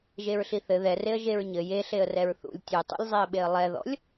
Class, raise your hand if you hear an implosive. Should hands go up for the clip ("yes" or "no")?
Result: yes